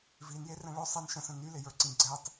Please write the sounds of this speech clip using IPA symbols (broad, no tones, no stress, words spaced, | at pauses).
vinjerɛ̃ ɭɵ sˤɛn ʃə̃sə̃ nylɪjə˞ǀĩ ɡ͡ǀɛtˤ